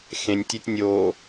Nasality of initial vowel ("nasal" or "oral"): nasal